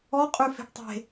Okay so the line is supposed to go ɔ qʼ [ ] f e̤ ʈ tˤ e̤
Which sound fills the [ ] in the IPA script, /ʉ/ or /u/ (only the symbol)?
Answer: ʉ